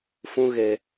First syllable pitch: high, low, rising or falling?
high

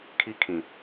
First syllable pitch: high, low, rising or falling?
high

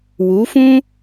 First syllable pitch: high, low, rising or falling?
rising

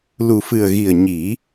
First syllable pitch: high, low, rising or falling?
low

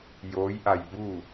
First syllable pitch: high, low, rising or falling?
rising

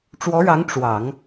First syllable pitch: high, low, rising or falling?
rising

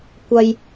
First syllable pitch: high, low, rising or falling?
high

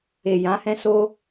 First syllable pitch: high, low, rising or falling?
low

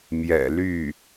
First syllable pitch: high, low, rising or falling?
low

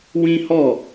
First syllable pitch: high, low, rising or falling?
high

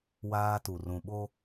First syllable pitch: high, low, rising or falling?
high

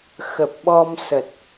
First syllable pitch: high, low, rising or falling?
low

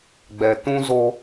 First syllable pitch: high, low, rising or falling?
low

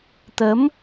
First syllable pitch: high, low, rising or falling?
rising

